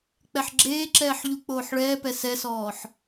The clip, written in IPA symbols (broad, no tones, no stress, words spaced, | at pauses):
k͡pɛħɡ͡ǁeːǁɛːħ ʎu k͡poːħɭɛːpɛ sɛsɔːħ